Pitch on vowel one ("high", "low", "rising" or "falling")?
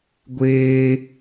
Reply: high